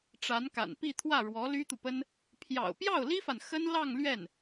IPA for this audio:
ʈ͡ʂ a˧˥ n k a̰˨˩ n p i˥˧ t̪ʰ w ä˥˩ ɻ w ɔ˧˥ l y˥ t̪ u˨ p ə˥ n | pʰ j ɑ̰˨˩ ʊ̯ p j ɑ˥˩ ʊ̯ l i˥ f a˨ n x ə˥ n l ɑ˥˧ ŋ l ɥ ɛ˥˩ n

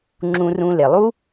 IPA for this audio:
ŋ͡ǁ ũ˧ r ũ˧ l e˨ lˠ u˦

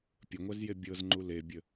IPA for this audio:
pʲ ə ŋʷ ɛ z j e bʲ ɤ z ŋ͡ǃ u l e bʲ ə

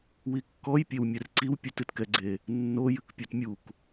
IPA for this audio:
w i kː ɔ j pʲ e w mʲ ɛ r ǀ i w pʲ ɘ t ɨ t k ɛ ɡ͡ǀ e | nː o j ɨ k pʲ o t mʲ u k

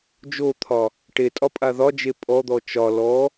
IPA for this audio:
d͡ʒ o t̪ʰ ɒ | ʈ e tʼ ɒ pʼ a ð ɒ d͡ʒ e pʼ ɔ d̪ ɔ t͡ʃ ɒ l ɔ

